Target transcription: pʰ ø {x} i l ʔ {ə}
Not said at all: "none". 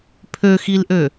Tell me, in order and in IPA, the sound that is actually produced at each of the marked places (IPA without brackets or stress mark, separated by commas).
x, ø